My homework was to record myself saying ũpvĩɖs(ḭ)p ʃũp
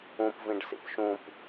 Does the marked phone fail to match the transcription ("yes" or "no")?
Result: no